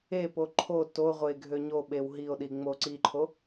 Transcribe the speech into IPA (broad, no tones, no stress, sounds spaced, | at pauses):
e p o ǃʰ o t o ʁʷ e ɡʱ ø ɲ o ɓ e w ɦ i o̯ ɗ i ŋ͡m o ǀ i ǃʰ o